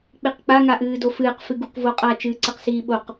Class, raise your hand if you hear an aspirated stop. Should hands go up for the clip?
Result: no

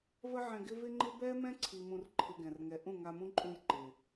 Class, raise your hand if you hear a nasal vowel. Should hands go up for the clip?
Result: yes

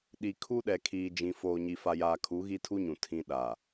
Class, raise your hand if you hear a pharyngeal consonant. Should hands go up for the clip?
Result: no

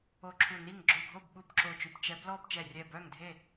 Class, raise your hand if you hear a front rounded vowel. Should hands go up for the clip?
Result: yes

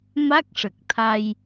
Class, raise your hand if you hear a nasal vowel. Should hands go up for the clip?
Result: no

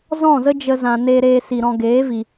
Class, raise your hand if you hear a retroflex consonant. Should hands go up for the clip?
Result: no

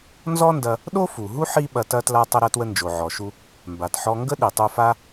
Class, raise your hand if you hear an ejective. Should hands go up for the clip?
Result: no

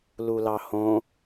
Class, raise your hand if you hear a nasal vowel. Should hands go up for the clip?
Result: yes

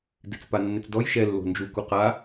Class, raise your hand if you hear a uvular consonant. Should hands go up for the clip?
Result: yes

